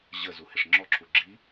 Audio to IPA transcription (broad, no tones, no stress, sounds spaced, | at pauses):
ʑ ə z u h ɪ ʂ ŋ͡ǁ ɔ ǁʰ u ɡ͡ǁ i